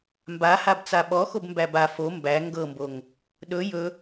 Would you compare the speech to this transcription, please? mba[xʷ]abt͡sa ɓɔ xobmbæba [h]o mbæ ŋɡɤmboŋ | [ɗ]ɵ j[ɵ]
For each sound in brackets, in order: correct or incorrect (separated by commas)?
incorrect, incorrect, correct, correct